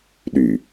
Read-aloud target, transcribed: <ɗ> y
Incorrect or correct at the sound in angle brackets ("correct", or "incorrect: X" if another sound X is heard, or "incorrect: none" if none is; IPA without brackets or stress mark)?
correct